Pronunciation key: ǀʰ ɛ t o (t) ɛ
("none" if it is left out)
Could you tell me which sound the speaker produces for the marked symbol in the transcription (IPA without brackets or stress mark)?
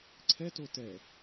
t